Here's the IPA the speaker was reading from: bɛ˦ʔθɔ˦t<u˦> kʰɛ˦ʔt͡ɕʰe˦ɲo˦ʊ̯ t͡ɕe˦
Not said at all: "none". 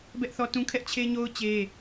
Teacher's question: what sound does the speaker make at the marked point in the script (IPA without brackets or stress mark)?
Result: ũ˦